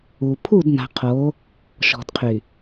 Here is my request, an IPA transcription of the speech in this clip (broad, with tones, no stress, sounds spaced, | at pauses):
u˨ pʰ u˦˨ d n a̤˨ qʰ o˨˦ | ʃ ɔ̤˨ d qʰ y˨